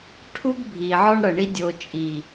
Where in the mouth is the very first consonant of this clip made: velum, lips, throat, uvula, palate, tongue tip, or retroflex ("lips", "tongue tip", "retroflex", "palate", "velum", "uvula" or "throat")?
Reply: retroflex